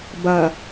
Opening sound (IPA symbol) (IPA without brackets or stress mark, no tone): b